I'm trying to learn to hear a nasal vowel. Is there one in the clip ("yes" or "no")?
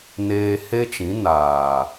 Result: yes